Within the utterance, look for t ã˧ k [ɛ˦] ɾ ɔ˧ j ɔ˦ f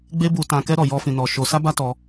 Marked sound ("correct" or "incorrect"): correct